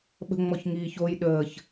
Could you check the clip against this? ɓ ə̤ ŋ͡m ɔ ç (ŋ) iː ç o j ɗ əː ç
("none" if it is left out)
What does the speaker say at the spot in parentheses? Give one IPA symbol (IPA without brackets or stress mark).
ŋ